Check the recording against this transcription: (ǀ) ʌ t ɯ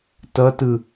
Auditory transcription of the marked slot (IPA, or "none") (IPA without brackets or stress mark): t